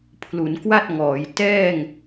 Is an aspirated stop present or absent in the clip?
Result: present